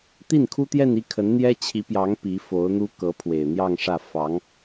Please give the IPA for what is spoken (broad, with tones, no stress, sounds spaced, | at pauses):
t̪ i˥˩ n kʰ u˥ t̪ j ɛ˥˧ n i˥˩ kʰ ə˧˥ n n̪ j ɛ˥ t͡ɕʰ i˧˥ p j ɑ˧˥ ŋ p i˧˥ f o˧˥ ʊ̯ n̪ u˥ k ɤ˧˥ pʰ w e˨˩ ɪ̯ n̪ j ɑ˥˧ ŋ ʂ ä˥˩ f ɑ˧˥ ŋ